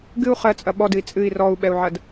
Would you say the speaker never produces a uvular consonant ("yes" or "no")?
no